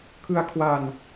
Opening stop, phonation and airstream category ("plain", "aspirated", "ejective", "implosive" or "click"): aspirated